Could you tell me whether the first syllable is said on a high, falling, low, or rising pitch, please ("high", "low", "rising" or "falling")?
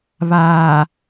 low